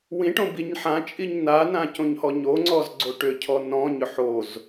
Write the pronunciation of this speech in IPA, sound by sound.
w ĩ ʈ õ b i ɲ ħ ã t͡ʃʼ i ɲ n a n ã c õ ɲ h ɔ ɲ o ŋ͡ǀ ɔ z ɡ͡ǀ o ʈ ʏ cʰ ɔ n ɔ̃ ɲ ʏ ħ o z

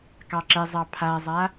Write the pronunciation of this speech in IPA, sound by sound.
k ɑ ǁ ɛ zˤ ɑ pʰ a zˤ a

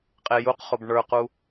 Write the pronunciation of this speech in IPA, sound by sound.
qʼ e j u q χ o b ɳ ə˞ q u

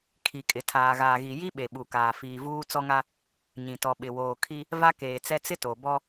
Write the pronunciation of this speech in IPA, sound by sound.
kʰ i˨ kʼ ɪ˨ tʰ aː˨ ɣ aː˨ ɣ i˨ j i˦ ɓ e˨ ɓ u˨ k aː˨ f iː˨ v uː˦ t͡s ɔ˦ ŋ a˦ | ɲ ĩ˨ t ɔ˨ ɓ ɪ˨ w oː˨ kʰ i˦ | v a˦ k eː˨ t͡s ɛ˦ t͡s ɪ˦ t o˨ b ɔ˦

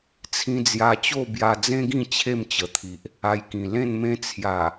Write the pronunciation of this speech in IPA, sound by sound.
t͡sʰ ĩ˧ d͡z j a˧ t͡ɕ o˥˧ b j a˧ d͡z ẽ˦ ɡ ĩ˥˧ t͡ɕʰ e˥˧ m t͡ɕ ə˨˩ t̪ʰ i˨ ʔ | a˧ j k ĩ˨˩ l ẽ˥˧ n m ẽ˦ t͡sʰ j a˨˩

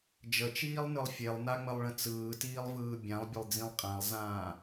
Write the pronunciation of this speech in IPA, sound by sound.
d͡ʒ ə t͡ʃ iː lˠ n ɯ lˠ fʲ e lˠ n a ŋ͡m ə lˠ ɭ ə̃ t͡s ɯː t iː lˠ v ɯː bʲ ã lˠ bʲ ə lˠ d͡z ĩ lˠ qʼ ã lˠ z ãː

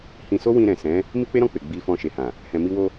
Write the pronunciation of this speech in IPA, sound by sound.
h ĩ˧ s o˦ w ĩ˧ ɾ ɛ̃˨ s ɛ̃˨˦ | m i˦ k͡p e˦ ɾ ɔ̃˦˨ k͡p e˨ ɡ͡b i˧ f ɔ̃˧ ʃ e˨ h ã˨ | h ɛ̃˨ m i˧ w o˧

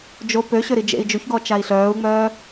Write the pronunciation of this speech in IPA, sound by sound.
d͡ʒ o p ø ɕ ø ɾ i d͡ʒ ḛ i̯ d͡ʒ u ç ɡ ɔ t͡ʃ a i̯ ɬ œː u̯ ŋ͡m œː

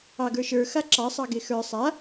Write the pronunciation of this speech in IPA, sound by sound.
ɑ ɡ ə˞ ʃ ə˞ x a ǁ ɑ sˤ ɑ ɡ e x ə˞ sˤ a

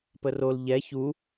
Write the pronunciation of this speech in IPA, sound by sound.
p ə r o l ʎ ɛ ç u

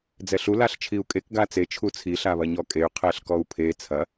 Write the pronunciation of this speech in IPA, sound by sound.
d͡z ɛ ɬ u l a ɬ t͡ʃʰ i u̯ kʼ e k ɡ a t͡s e t͡ʃʰ u t͡sʰ i ɬ a β ɐ ɲ ɔ kʼ e y̯ qʰ ɛ ɬ k ɔ u̯ pʰ e t͡sʰ ɐ

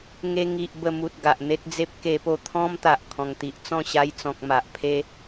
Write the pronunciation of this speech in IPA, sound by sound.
ŋ e˧ ŋ i˨ ʔ b ə˧ m u˨ t̚ ɡ a˨ ʔ n̪ e˦ t̚ d͡z e˦ p̚ k e˧ p o˧ t̪ʰ ɔ̃˦ m t̪ a˨ ʔ kʰ ɔ̃˨˩ ŋ t̪ i˨ ʔ t͡s ɔ̃˥˧ ɕ a˧ j t͡s ɔ̃˨ k̚ m a˨ ʔ pʰ e˦

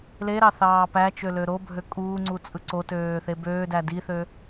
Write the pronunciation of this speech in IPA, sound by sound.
l e ɾ ɑ θ ɑː p æ t͡ʃ ø l ø ɾ o bʱ ø kʼ uː ŋ͡ǀ u t͡sʼ ɯ ǀ o t øː θ e b øː d æ d i θ ø

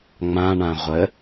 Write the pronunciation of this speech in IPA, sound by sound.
ŋ͡m ã ɳ ã ʁʷ ə

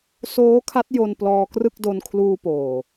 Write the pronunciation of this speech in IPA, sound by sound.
s oː˦˥ kʰ a˦˥ t̚ j o˧ n p l ɔː˧ k r ɯ˥˩ k̚ d o˧ n kʰ l uː˧ p oː˨˩

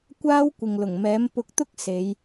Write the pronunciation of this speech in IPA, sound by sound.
kʷ aː˥ w kʷ ɪ˨ ŋ l ʊ˨˩ ŋ m ɛː˨˥ m p ʊ˧ k̚ t̪ ʊ˥ k̚ s e˨˧ j

